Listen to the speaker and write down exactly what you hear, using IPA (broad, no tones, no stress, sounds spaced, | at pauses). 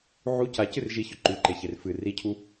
ʕ u c a c ɨ r ʒ i ç ɵ ǃ ʉ ǃ e ç e r f ɨ r i cʰ u